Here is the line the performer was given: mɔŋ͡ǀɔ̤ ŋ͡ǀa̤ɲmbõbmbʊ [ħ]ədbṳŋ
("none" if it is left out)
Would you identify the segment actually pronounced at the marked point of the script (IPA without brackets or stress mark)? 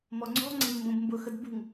x